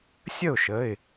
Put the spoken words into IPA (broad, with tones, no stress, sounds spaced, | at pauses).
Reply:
sʲ ə˥˩ ʊ̯ ʃ ə˩˧˩ ɪ̯